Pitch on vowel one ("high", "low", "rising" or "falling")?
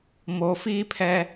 low